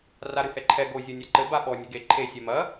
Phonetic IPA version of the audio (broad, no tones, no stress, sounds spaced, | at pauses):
r a ɾ ɨ h ɛ ǃʰ ɛ ɡ o zʲ o nʲ a ǃ ɘ b a ɓ ɔ nʲ ɘ ɡ e ǃʰ e sʲ ɛ m ɐ